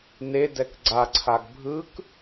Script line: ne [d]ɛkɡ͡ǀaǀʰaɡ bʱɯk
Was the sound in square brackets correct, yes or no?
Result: yes